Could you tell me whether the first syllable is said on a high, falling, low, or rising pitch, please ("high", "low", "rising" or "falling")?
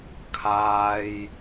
low